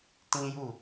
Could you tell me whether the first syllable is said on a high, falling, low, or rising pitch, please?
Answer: high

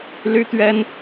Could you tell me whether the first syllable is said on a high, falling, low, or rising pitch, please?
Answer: high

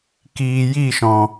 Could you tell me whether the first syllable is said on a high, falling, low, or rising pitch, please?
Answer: low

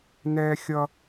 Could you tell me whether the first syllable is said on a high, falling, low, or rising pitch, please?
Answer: high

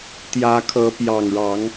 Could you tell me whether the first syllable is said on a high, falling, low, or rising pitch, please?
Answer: rising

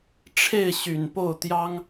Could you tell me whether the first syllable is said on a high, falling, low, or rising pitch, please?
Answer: falling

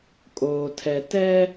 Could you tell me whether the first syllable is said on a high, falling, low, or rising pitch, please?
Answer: low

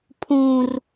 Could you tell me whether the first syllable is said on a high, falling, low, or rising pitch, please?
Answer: high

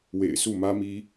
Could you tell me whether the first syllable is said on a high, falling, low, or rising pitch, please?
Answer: low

